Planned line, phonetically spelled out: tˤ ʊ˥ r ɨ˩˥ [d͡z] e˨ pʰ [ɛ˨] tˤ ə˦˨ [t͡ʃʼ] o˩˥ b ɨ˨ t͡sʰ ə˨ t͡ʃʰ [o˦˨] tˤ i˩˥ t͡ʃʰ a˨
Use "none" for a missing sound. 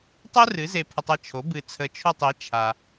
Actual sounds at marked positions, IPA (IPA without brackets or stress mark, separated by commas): z, ə˨, t͡ʃʰ, o˦˨